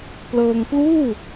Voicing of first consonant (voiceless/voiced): voiceless